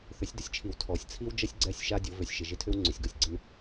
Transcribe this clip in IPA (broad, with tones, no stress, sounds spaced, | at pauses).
θ ʏ˨˦ sʲ d ə˦ sʲ t͡ʃʰ i˨ w tʰ ɔ˨ sʲ t͡sʰ i˦ w d͡ʒ ə˦ sʲ ɡ͡ǀ ɛ˦˨ sʲ ʃ a˦ dʲ o˨˦ v ʏ˨ sʲ ʃ ɪ˨ ʒ ɪ˦ tʰ ʏ˦ w ŋ͡ǀ ʏ˨ sʲ ɡ o˨ sʲ ɡ͡ǀ ə˦ n